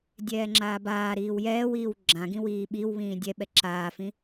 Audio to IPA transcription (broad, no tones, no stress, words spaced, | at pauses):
dʲɛːŋ͡ǁaːbaː ɾiːwjɛːwiːw ɡ͡ǁãɡĩwiː ɓiw βĩːdʲɛɓɛ ǁaːfĩ